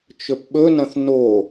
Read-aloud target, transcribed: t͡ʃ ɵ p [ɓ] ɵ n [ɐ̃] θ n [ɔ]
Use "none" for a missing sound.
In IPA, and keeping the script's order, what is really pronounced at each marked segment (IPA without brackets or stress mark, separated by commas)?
ɓ, ɐ̃, o